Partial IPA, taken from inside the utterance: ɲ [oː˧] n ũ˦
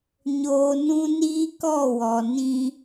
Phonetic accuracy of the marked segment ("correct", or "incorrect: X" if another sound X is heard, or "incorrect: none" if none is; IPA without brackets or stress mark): correct